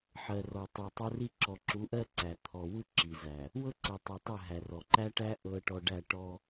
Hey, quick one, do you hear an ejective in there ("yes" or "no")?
no